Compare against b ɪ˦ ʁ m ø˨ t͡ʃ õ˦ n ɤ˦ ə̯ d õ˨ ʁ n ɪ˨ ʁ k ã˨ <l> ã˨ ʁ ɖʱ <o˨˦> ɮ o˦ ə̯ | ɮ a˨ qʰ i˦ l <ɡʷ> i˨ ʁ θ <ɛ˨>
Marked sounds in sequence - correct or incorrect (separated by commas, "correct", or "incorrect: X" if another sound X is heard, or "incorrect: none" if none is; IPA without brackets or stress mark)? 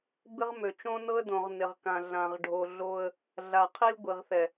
incorrect: ɮ, incorrect: o˨, correct, correct